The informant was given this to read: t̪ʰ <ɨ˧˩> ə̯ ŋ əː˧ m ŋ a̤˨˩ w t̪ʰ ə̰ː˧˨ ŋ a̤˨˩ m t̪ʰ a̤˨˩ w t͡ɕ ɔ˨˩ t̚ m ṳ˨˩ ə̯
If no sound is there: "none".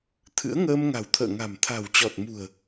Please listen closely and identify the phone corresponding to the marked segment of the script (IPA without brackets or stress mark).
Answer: ɨ̰˧˥